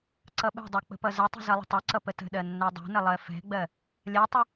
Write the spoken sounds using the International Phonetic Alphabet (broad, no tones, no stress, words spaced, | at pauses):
ǀʌɓɛ̤dˤɛ k͡pə̤pʌzətˤə̤ zʌlˠə̤tˤɛǀʌ pətə̤ɗɜ nːɛdˤo̤nə lˠɜfɛ̤ɡ͡bɜ | lʲɜtˤə